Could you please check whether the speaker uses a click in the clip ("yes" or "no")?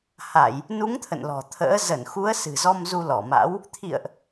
no